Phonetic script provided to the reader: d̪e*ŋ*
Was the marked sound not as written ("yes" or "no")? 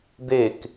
yes